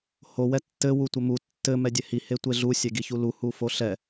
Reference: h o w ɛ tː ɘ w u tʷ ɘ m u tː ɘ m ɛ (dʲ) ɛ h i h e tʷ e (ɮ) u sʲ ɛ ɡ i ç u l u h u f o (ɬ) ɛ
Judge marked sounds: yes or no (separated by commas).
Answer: yes, yes, yes